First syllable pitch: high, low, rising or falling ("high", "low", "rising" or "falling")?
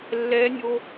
high